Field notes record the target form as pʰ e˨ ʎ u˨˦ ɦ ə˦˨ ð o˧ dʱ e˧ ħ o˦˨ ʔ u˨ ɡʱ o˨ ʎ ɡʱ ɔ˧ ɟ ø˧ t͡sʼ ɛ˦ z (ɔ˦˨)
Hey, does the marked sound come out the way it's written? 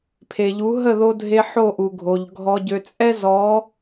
no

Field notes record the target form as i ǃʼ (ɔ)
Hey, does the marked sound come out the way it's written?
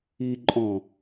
no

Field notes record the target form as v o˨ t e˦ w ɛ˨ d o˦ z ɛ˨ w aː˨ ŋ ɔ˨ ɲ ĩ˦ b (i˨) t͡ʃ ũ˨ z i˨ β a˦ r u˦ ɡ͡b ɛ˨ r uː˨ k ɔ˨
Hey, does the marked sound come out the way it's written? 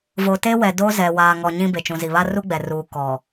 no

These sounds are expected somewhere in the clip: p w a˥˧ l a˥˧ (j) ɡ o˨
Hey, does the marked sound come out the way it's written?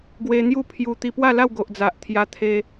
no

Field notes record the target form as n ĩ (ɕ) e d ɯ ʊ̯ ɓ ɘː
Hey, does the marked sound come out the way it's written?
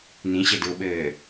yes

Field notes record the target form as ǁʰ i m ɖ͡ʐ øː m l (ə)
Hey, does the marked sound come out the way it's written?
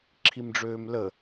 yes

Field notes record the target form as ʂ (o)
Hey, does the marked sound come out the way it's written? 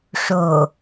yes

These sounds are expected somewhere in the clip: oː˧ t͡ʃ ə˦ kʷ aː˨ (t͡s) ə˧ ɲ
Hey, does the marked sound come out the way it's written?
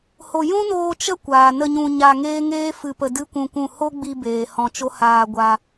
no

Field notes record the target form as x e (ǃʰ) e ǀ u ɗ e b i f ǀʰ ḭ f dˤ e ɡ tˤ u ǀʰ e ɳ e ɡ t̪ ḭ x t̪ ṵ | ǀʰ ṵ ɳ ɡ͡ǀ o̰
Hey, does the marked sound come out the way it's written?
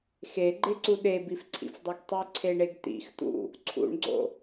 no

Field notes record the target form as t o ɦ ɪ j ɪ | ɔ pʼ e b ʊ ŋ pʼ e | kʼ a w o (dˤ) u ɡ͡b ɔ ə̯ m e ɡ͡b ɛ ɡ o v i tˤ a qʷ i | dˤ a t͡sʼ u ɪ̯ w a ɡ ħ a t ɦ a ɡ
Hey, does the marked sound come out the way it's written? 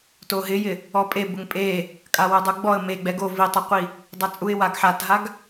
yes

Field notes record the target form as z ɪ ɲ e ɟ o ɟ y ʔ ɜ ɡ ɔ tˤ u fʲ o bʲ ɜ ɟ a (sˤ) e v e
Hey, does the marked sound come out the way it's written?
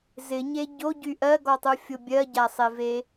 yes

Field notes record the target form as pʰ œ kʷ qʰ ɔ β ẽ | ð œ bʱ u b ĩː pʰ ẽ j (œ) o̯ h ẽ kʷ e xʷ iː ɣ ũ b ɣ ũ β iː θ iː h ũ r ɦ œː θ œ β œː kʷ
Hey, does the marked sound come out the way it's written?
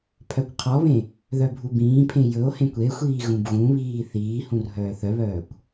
no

